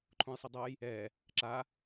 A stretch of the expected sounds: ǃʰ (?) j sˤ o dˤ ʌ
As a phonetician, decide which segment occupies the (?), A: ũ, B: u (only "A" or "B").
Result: A